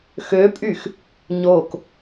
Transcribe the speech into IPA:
x ø pʼ y x | ɲ o k

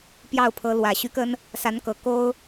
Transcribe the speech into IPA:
p j ɑ˥˩ ʊ̯ pʰ ɤ˧˥ l w ä˨˩ ɕ y˧˥ k ə˥ n | s a˧˥ n k ɤ˨˩ k o˥ ʊ̯

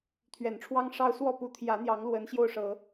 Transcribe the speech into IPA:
t̪ʰ ɥ ɛ˨˩ n ʈ͡ʂʰ w ɑ˦ ŋ ʂ ɑ˦ ʊ̯ s w ɔ˥˨ p u˨˦ t̪ʰ j ä˨˦ n̪ j ɑ˨˦ ŋ l w ə˨˦ n ɕ j o˧ ʊ̯ ʂ ɤ˨˦

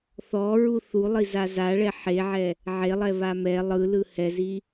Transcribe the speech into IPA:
θ ɔ ɹ u θ u lˠ i z a z a ɭ ɛ ħ e ʕ ɛ | ʕ e lˠ ɛ β a m ɛ lˠ ɯ l ɯ h ɛ z i

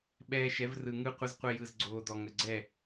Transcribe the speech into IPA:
ɓ ɛː˧ ʃ ɛ˨˦ v r ɯ˨ ŋ ɯ˦ qʷ ə˦ z qʷ ɛ˧ j ɯ˨ z ɡ͡ǀ oː˨ d ɔ˨ ŋ ə˨ ɡ͡ǀ ɛ˦˨

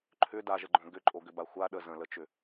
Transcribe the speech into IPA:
ǃʰ ʏ d a ʒ ə ɡ͡ǃ õ ɡ ʏ ǃʼ o ɡ ʏ b a xʷ a ɗ ə z ə̃ l ə t͡ʃ ʏ

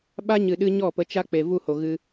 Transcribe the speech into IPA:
ɓ a˦ ɲ ɨ˨ ɗ ɨ˧ ɲ ɔ˦˨ p ə˧ t͡ʃ a˦ k͡p e˨ v u˦˨ h o˨ ɣ ɨ˧

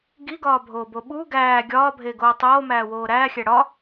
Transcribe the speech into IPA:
ɡ i ɡ ɒː bʱ oː b o ɓ u ɡ æː ɡʲ ɒː bʱ e ɡ oː tˤ oː m æː w oː ɾ æː xʲ æ ɽ ɒ

